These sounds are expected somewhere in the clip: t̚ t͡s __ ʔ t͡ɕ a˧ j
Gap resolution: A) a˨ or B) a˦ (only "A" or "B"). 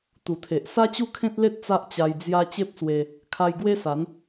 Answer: B